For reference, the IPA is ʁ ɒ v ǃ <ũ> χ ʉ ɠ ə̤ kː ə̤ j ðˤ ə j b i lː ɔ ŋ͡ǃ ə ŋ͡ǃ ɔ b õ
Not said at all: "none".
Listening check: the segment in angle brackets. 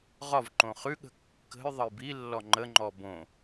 õ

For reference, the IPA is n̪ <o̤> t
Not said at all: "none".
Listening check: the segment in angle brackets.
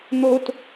o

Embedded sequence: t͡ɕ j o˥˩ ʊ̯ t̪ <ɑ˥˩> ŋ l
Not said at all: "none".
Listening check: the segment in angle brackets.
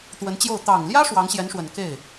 ɑ˨˩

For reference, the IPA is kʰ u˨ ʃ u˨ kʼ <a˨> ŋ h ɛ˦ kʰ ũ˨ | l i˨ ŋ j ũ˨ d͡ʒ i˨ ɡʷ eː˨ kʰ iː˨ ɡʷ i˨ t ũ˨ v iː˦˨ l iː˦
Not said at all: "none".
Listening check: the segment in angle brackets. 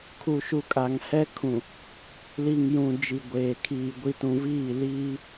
a˨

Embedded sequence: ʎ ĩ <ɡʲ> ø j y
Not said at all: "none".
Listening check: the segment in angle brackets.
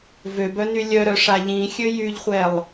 xʲ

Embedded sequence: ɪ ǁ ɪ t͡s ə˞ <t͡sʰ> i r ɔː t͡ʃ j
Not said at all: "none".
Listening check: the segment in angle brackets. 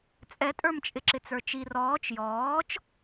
t͡ʃ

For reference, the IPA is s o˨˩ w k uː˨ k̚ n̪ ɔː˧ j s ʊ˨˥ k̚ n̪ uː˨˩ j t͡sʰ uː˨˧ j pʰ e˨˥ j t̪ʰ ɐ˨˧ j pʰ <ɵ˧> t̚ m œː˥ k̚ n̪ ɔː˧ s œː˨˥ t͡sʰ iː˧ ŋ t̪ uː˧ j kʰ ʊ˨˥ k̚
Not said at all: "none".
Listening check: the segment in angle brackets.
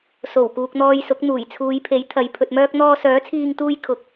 ɵ˧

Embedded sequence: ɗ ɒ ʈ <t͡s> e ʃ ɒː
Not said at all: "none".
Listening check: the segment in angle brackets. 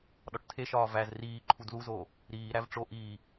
tʰ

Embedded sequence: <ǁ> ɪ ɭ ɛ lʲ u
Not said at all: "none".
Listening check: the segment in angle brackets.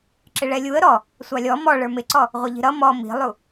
ǁ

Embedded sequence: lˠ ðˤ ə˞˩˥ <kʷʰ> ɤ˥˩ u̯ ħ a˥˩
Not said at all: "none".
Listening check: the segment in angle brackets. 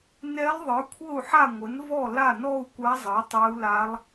kʷʰ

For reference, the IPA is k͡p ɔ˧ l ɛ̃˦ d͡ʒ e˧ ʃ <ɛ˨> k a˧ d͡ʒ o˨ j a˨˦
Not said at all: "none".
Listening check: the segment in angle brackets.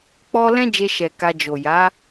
ɛ˨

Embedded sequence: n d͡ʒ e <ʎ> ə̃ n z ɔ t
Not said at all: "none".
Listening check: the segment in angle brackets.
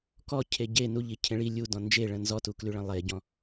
ɭ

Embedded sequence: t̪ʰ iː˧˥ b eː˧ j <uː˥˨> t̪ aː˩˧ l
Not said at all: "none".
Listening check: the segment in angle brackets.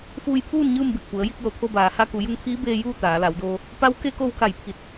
uː˥˨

